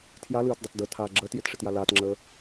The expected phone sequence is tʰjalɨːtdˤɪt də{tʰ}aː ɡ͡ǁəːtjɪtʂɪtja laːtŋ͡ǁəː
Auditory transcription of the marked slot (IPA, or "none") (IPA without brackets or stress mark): tʰ